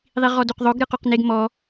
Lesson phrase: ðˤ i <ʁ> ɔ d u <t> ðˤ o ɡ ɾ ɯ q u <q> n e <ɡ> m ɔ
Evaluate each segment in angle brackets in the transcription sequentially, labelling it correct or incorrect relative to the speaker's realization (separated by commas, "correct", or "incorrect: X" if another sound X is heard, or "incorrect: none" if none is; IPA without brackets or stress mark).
correct, incorrect: q, correct, correct